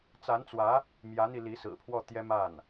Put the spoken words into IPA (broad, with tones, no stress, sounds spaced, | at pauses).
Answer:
t͡s a˧˥ n t͡s w ä˧˥ | m j ä˧˥ n̪ i˧ l i˧˥ s ɹ̩˨˩ pʰ w ɔ˥˩ t̪ j ɛ˥ m a˥˩ n